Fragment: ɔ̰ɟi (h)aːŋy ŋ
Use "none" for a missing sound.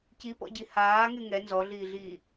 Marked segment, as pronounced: h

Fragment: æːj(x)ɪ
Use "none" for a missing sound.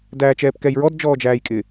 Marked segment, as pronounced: kʼ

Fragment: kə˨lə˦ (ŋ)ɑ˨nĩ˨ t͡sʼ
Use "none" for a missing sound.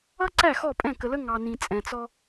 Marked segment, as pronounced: ŋ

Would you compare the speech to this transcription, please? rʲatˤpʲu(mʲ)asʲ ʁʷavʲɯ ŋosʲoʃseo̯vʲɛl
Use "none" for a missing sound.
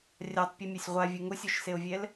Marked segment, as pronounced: mʲ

